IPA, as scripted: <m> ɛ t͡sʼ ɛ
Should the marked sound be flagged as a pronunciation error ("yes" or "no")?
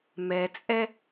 no